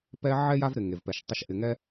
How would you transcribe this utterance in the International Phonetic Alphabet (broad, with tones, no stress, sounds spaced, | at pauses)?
p ɛ˦ ʕ ɛ˥ j a˦ v ɾ ɪ˩ ŋ e˩ v p ɛ˩ ʃ tˤ ʊ˨ ʃ ʔ ɪ˩ ŋ ɛ˦